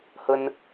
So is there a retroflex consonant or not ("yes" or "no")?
no